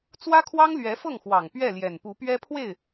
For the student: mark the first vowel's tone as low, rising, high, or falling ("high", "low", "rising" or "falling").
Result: high